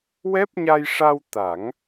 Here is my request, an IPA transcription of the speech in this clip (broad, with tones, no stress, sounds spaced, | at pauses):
w ɛ˦˥ p̚ ɲ a˧ j ʂ a˧ w t̪ a˨˩˦ ŋ